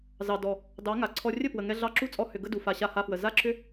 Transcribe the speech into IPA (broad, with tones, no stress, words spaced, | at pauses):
zɑ˨ dɔ˨ | dɑ˨˦ŋa˨ǀʰɔ˧ rʲə˦˨pwə˨ŋɛ˧ ɮɑ˧ǁu˦t͡sʼɔ˧ hʏ˨ ɡə˦du˨ fa˨ɕa˧ha˧fwə˨ za˦ǁʏ˦